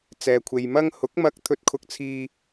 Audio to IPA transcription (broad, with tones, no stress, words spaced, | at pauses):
t͡sɛː˨kʷʰe˨jmɐ˥ŋ hʊ˨˥k̚mɐ˧k̚ t̪ʰɵ˧t̚kʰʊ˧k̚t͡sʰiː˧